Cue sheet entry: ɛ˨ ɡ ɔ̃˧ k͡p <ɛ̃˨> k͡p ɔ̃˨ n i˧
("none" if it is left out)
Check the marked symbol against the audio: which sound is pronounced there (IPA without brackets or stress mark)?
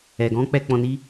ɛ˨